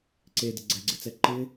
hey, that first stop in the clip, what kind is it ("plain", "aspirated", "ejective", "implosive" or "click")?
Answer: click